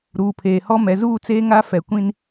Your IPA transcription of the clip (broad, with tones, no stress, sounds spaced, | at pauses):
ɾ uː˨ pʰ eː˨ h ɔ˦ m ɛ˨ z uː˦˨ t͡s eː˦ ŋ a˦ f ɛ˨ kʷ ĩ˦ n